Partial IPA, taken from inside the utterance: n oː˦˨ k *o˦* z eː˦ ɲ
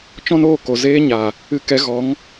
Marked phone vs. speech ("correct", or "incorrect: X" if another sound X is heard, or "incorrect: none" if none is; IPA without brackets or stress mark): incorrect: o˨